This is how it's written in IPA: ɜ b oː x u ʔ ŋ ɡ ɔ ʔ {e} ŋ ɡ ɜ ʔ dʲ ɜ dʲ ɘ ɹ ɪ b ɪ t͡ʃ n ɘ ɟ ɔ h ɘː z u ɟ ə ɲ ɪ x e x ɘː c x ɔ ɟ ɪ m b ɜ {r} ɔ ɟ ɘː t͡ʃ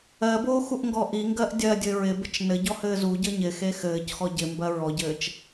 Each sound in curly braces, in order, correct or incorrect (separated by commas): incorrect, incorrect